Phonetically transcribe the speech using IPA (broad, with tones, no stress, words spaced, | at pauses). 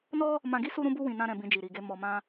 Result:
nɔ˦ | mã˧ɡi˦ su˦ɾũ˦bu˦ wĩ˧nã˦ ɾɛ̃˧bĩ˧d͡ʒi˨ ɾi˨ɡe˧ mɔ˧mã˦